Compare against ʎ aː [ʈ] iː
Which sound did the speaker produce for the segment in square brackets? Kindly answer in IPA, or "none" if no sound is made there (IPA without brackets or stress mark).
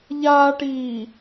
ʈ